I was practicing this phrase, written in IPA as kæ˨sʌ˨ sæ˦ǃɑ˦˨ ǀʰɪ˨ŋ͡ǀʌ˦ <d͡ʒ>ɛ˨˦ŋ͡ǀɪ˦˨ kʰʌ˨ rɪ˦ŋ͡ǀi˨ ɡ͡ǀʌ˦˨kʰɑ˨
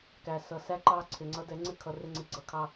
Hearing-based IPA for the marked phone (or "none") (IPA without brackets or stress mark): d